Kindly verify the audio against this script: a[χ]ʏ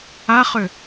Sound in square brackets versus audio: correct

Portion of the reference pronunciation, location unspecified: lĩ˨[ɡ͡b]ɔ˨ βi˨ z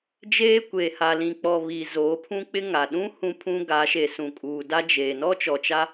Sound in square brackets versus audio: incorrect: k͡p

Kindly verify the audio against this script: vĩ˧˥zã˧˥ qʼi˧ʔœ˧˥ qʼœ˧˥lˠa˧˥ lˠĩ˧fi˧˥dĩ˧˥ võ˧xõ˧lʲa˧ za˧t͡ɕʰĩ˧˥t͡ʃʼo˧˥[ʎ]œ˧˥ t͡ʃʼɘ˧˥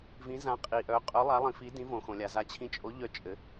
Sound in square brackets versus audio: correct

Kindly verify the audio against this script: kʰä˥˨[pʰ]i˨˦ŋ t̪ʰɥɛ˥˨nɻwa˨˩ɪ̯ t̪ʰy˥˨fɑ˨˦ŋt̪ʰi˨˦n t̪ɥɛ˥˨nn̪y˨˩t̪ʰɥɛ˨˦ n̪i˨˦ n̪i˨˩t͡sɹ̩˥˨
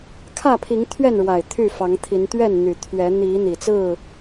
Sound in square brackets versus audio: correct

